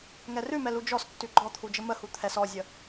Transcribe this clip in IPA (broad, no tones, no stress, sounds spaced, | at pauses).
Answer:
ŋ ɛ r ʉ m ɛ l u d͡ʒ ɔ s tː ʉ ɡ͡ǃ ɔ t̪ʰ u d͡ʒ ə m ə h u t̪ʰ ɛ s ɔ zʲ ə